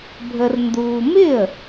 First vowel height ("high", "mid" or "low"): mid